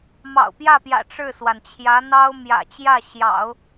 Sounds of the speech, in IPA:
m ɑ̰˨˩ ʊ̯ p j ä˥˩ p j ä̰˨˩ ʈ͡ʂ ɻ̩˥˩ s w a˩ n t͡ɕʰ j ä˧˥ n̪ ɑ˥ ʊ̯ m j ä̰˨˩ t͡ɕ j ä˥˩ ɕ j ɑ̰˨˩˦ ʊ̯

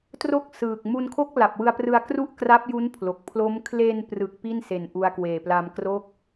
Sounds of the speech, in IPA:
t r o˥˩ k̚ s ɯː˨˩ k̚ m u˧ n kʰ o˥˩ k̚ l a˨˩ p̚ w ɯ˧ a̯ p r ɯ˧ a̯ k r u˥˩ ʔ k r a˦˥ p̚ j u˦˥ n pʰ l o˨˩ k̚ pʰ l o˦˥ m kʰ l e˧ n p r ɯ˨˩ k̚ p i˥˩ n s e˨˩ n ʔ u˧ a̯ k w eː˨˩ p l a˧ m k r o˥˩ k̚

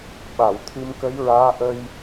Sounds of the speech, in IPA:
ɓ a˨˩˨ w t̪ʰ ɨ˧ m k ə˧˥ j ɹ aː˧˥ ʔ ə˧ j

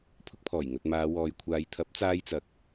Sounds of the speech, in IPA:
pʰ ʊ˧ k̚ pʰ ɔː˨˩ j ŋ ɵ˨ t̚ m aː˨˧ w ɔː˨ j kʷʰ aː˨˧ j t̪ʰ ɐ˨˥ p̚ t͡s aː˧ j t͡s ɐ˨ k̚

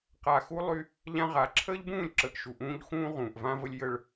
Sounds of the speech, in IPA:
q a˨ x u˦ lˠ y˦ | ʎ ã˦ ʁ a˨˦ ǁʰ əː˦ ʎ b ũː˦˨ lʲ ǁ ə˨ ʔ ʃ u˨ ʔ ũː˦ ʎ x ũː˦ ʁ ũː˨ ʔ v ã˦ v ə˦ lʲ j ə˦ ɭ

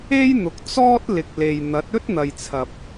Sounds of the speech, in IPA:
e˥ j n̪ ʊ˨ k̚ t͡s ɔː˥ t̚ l ɪ˨ k̚ l e˨ j n̪ ɐ˨˥ t̚ ɵ˥ t̚ n̪ ɐ˨ j t͡sʰ ɐ˨ p̚

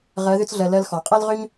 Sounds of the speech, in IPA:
ʁ ɜ˧˥ ð ʏ˥ t͡s ɮ ɜ˧ l ɜ˧ l x ɔ˩˧ qʼ ɛ˥ l ʁ ø˥ ɲ

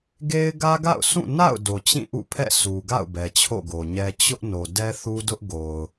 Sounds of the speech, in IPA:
ɡ e˦ ɪ̯ ɡ ä˦ ɡ a̰˦˨ ʊ̯ s ũ˦˨ n a̰˦˨ ʊ̯ d o˨ t͡ɕ ĩ˦˨ ʔ ṵ˦˨ pʰ ɛ̰˦˨ sʰ u˨ ɡ a̰˦˨ ʊ̯ b ɛ˨ t͡ɕʰ o̰˦˨ ɡ o˨ ɲ ɛ˦ t͡ɕ ʊ˦ ʔ n o˨ d ɛ˦ θ u˦ d ʊ˦ ʔ ɡ o˨ ʊ̯

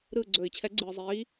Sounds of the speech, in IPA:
ɾ ɯː˦˨ ɡ͡ǀ ɵː˨˩˦ i̯ t͡ɕʰ ɛ˨˥ ɡ͡ǀ ɯː˨ zˤ iː˨˥

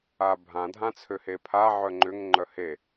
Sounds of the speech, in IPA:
a bʱ ã dʱ ã t͡sʰ ø h e pʰ a ʕ œ ŋ͡ǃ ʏ ŋ ŋ͡ǃ œ h e

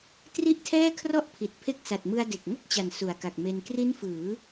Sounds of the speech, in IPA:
t r i˥˩ ʔ tʰ ɛː˥˩ kʰ r ɔ˥˩ ʔ pʰ i˨˩ t̚ pʰ e˦˥ k̚ s a˨˩ t̚ m ɯ˧ a̯ d e˨˩ k̚ ŋ o˥˩ k̚ t͡ɕ a˨˩ n s u˨˩ a̯ k a˨˩ k̚ m e˧ n k r i˦˥ n f ɯː˩˦

